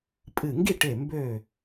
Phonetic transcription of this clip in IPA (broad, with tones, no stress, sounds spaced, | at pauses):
pʼ ɨ˧˩ ŋ ɡ i˥˨ ʈ e˧˩ m b ø˥˨